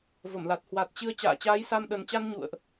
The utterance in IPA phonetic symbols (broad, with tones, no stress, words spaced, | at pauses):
və˧˩mla˨˩t̚ hwa˨˩t̚t͡ɕɨ˧ə̯ t͡ɕa̰ː˧˨t͡ɕaː˨˦jsa˧m ɗə˨˩nt͡ɕa˧n ɲṵ˧˨ə̯ʔ